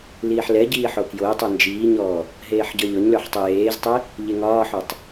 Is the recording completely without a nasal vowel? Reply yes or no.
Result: yes